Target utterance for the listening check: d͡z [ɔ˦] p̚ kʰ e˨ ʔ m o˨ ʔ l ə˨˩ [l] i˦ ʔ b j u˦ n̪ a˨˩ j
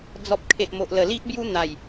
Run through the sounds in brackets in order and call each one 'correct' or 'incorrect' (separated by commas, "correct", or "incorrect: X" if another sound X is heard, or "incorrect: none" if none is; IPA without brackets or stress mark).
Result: incorrect: ɔ˨, correct